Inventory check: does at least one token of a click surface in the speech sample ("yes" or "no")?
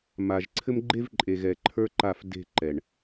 yes